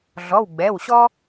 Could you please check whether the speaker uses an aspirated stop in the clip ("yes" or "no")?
no